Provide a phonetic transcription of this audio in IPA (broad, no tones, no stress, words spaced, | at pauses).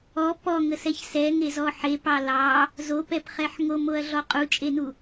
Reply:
ɔ pɔŋəsɛç sɛŋezɔ ħepɑ lɑ | zopɛpχɛħ ŋomoɐ̯ɮɔ qʼut͡ʃʼenu